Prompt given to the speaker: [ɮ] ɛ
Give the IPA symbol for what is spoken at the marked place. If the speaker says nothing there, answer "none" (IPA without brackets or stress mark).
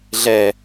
ɮ